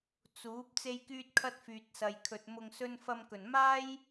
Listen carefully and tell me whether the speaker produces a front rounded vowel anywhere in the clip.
yes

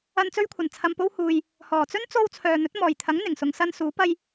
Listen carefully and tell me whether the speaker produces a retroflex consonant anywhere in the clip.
no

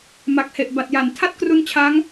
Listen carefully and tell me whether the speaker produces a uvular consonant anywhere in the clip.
no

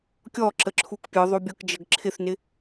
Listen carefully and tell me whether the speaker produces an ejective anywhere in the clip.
no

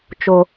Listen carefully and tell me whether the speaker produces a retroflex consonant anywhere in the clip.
no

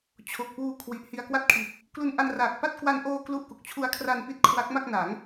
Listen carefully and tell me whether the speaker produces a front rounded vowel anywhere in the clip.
no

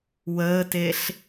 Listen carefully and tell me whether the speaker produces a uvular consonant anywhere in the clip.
no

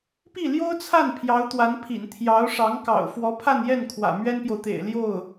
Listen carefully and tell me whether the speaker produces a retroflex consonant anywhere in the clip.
yes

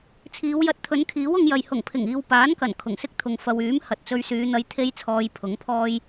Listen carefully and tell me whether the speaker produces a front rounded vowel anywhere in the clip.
yes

